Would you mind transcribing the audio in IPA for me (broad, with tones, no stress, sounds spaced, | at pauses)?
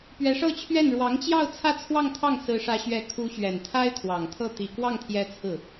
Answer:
p ɥ ɛ˧˥ ʂ ɤ˥˧ t͡ɕʰ ɥ ɛ˥˩ n ɻ w ɑ˧˥ ŋ t͡ɕ j ɑ˥˧ ʊ̯ t͡sʰ ä˥˧ t͡sʰ w ɑ˥˧ ŋ t̪ʰ ɑ˥˩ ŋ s ɹ̩˧˥ ʂ ä˧˥ ɕ ɥ ɛ˧˥ kʰ u˧˥ ɕ ɥ ɛ˨˩ n t̪ʰ a˥ ɪ̯ t̪ʰ w ɑ˨˩ ŋ t̪ʰ ɤ˥˩ t̪ i˨˩ k w ɑ˥˩ ŋ t̪ʰ j ɛ˧˥ t͡sʰ ɹ̩˥˩